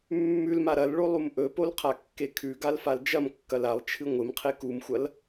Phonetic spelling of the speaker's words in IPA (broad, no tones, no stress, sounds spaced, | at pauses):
mː ʉ l m a ɾ ɐ l ɭ o lˠ u m ʔ ɵ p o l qʰ a kː e kʰ ʉ ɡ a l f a l d͡ʒ ɐ m kː ɐ l a lˠ t͡ʃʰ ɨ ŋʷ ɨ m qʰ e k u m xʷ ɐ l